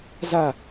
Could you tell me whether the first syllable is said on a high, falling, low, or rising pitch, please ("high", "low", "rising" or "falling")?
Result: falling